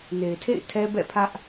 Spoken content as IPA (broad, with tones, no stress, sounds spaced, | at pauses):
n e˨ ɪ̯ tʰ ḛ˦˨ ɪ̯ tʰ ɛ˦ b ɛ̰˦˨ pʰ ä˦ ʔ